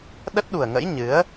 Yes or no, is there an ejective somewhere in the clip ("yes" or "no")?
no